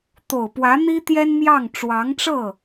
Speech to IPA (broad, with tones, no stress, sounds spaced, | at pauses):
t̪ o˨˩ ʊ̯ p w ä˧˥ n̪ i˥ t̪ j ɛ˥ n m j ɑ˥˩ ŋ ʈ͡ʂ w ɑ˧˥ ŋ ʈ͡ʂ ɤ˥˩